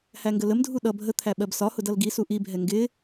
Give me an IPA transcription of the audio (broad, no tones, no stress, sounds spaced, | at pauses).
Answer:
h æ ŋ ɡ ə l ə m dʱ u ɗ ʌ bʱ ə t̪ʰ æ ɓ ɜ b s ɒ h ʊ d ʌ l ɡ i s u ʔ i bʱ ɛ ŋ ɡ ɪ